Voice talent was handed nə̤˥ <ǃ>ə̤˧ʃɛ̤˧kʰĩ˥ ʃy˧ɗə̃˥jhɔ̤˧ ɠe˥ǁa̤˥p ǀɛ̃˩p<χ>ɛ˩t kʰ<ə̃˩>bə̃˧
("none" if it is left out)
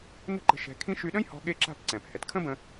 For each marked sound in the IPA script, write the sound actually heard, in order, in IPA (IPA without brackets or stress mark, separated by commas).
ǃ, h, ə̃˥